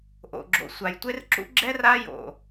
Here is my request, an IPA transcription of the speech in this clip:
ʔ o̰˨ ɡ͡ǁ o̰˨ sʷ a˨ j tʷ e˦ r ǁ ṵ˦ ɡ͡ǁ ɛ˦ r a˦ j o̰˨

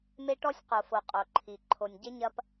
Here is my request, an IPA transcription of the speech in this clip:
m e˦ ʈ ɔ˦ sʲ q o˨ f o˨ qʼ o˨ ǃʰ i˨ ǃʰ o˨ nʲ ɟ e˦ ɲ ɐ˦ p

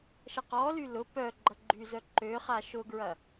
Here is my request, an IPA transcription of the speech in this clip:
ʃ ɐ q ɔ l y l ʊ p œ ɡ͡ǃ ɐ ɡ͡ǃ y z œ ǃ ø χ a ʃ ʊ ɡ ɹ ɐ

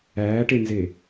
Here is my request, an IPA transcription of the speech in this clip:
æː ʈ e n z e

